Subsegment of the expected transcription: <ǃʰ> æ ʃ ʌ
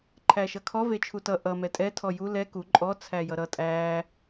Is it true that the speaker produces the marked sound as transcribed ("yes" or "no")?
yes